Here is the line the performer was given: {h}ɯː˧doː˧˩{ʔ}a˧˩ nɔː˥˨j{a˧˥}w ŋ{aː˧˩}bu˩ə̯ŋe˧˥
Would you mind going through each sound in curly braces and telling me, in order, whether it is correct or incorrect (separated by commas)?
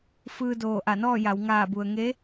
incorrect, correct, incorrect, correct